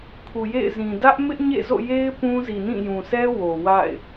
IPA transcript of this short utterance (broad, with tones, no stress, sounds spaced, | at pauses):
kʰ u˨ j ḛ˦˨ ɪ̯ z ĩ˨ d ä˦ ʔ m ɪ˦ ʔ ɲ ḛ˦˨ z o̰˦˨ j e˦ ɪ̯ p ũ˦ z i˨ n ĩ˦˨ j ũ˨ sʰ ɛ˦ w o˨ w a̰˦˨ ɪ̯